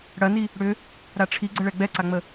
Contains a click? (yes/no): yes